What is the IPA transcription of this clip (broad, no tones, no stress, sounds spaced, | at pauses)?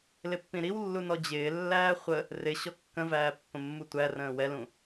l ɪ pː ĩ ɾ i w lː u n ɔ d͡ʑ ɪː lː æː χʷ ə | r ɪ ɕ ɔ kː ə̃ v æː pː ə̃ mː u tʷ æ r ə̃ː w ɛ l ũ